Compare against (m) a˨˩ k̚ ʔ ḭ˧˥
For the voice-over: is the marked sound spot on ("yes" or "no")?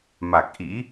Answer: yes